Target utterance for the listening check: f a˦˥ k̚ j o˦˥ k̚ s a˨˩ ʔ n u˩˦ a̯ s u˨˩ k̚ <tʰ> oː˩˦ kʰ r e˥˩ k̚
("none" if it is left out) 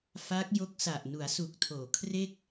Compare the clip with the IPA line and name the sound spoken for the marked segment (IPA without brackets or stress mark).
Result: tʰ